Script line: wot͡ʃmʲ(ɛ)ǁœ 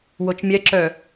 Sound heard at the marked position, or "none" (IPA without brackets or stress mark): ɛ